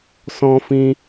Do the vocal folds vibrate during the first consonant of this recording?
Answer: no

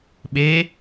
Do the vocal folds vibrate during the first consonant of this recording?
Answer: yes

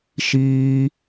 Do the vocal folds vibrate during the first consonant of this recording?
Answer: no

